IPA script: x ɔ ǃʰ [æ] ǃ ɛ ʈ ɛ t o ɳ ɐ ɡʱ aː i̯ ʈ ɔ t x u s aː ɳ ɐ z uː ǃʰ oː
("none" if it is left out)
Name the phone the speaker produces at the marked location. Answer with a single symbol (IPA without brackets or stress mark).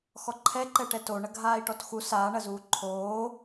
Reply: ɛ